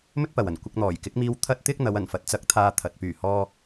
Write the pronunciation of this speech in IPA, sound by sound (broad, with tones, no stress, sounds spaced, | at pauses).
m ɵ˥ t̚ p ɐ˨ w ɐ˨˩ n kʷ ɪ˧ k̚ n̪ ɔː˨˩ j k ɪ˨˥ k̚ m iː˧ w t̪ʰ ɐ˥ t̚ t̪ ɪ˥ k̚ n̪ ɐ˨˧ w ɐ˨˩ n f ɐ˨ t̚ t͡s ɐ˨˥ k̚ t̪ʰ aː˧ t̪ʰ ɐ˨ t̚ p yː˨˩ h ɔː˨